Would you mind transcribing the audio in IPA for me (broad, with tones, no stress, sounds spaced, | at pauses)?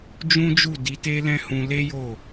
d͡ʒ ũ˦ d͡ʒ u˦˨ d i˨˦ t e˦ l ɛ̃˦ h ũ˧ l e˦ j o˦˨